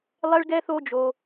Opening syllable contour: high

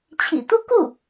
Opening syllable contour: low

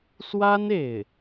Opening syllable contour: high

